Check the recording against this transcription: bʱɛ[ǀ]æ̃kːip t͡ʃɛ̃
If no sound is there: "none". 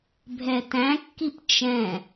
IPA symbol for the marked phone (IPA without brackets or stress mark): t